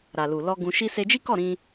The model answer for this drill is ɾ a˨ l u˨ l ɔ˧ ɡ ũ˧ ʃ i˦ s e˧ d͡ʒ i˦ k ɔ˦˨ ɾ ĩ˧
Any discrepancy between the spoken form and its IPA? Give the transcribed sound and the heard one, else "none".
none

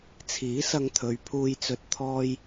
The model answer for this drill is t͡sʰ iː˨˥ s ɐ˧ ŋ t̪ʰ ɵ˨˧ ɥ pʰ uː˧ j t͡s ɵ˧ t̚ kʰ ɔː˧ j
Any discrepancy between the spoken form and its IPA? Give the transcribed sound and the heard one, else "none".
kʰ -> t̪ʰ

